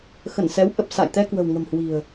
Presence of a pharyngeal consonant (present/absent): absent